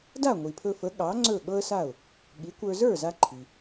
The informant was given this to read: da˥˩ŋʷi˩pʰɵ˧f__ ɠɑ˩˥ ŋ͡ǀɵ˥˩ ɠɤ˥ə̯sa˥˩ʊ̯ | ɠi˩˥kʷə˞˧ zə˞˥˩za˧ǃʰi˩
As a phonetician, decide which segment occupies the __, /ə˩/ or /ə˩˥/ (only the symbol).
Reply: ə˩˥